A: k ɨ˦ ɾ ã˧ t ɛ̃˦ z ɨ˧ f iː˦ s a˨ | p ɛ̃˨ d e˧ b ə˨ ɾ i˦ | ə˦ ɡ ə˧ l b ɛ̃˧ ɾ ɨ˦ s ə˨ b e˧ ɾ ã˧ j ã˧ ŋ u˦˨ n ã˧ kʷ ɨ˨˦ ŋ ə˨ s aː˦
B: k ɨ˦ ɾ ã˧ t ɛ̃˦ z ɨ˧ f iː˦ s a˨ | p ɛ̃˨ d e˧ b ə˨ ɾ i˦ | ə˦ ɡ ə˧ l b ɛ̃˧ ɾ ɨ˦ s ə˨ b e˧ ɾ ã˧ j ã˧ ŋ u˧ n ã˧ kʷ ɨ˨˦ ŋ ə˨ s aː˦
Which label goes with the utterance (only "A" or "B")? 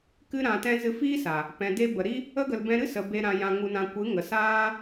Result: B